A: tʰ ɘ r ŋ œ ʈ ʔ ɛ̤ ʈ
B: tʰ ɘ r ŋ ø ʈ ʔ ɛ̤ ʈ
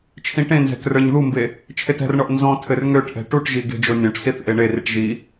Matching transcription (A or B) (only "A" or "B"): B